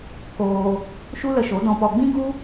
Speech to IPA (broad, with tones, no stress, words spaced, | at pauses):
koː˧ | ʃu˦lə˧ʃo˨˦ dɔ̃˧pɔ˧ ɡ͡bĩ˦ɡu˦